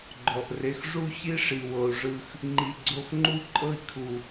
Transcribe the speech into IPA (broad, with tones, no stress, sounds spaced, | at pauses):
ɡ͡ǃ ɔ˩ ʔ r e˨ x ʐ u˦ ç i˥ ʂ i˩ w ɤ˩ u̯ ʐ ɯ˨ x | ŋ͡ǃ i˨ ɡ͡ǀ o˦ x ŋ͡ǃ u˥ ǃʼ ɤ˦ i̯ kʰ u˩